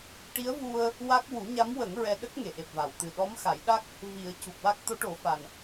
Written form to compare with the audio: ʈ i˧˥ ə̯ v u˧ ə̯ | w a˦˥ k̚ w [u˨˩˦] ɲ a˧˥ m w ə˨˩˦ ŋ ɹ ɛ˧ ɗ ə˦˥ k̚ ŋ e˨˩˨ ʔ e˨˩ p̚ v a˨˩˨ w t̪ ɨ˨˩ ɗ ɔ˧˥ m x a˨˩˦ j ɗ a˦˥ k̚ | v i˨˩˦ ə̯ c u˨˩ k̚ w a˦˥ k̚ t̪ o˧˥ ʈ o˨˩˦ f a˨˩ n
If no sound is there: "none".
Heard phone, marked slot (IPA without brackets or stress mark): u˨˩˦